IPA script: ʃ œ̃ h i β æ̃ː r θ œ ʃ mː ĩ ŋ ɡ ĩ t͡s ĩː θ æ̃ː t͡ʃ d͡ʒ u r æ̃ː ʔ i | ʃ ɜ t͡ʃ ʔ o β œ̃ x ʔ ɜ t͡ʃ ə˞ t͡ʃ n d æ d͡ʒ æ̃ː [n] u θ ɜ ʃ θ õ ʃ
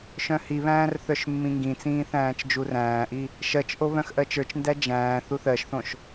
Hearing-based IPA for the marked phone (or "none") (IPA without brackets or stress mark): θ